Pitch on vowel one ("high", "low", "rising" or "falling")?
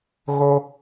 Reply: high